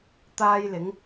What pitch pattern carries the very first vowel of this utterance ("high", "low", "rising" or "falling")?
high